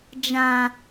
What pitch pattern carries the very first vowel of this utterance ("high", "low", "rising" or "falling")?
low